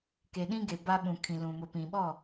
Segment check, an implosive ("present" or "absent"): present